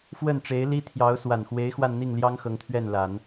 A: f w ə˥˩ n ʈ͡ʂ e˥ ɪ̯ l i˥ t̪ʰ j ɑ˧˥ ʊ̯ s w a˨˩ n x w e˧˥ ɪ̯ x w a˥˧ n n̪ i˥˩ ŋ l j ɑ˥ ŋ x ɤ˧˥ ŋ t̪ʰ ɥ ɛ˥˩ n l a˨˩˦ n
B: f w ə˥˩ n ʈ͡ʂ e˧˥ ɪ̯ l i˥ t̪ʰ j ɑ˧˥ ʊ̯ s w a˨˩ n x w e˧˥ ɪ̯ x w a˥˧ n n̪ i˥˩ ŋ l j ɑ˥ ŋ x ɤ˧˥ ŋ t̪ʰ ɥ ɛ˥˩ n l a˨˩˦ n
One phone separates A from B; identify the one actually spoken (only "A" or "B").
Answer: B